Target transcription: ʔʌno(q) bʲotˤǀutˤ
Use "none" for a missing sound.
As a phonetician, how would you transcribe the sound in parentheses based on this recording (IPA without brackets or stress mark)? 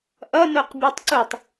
q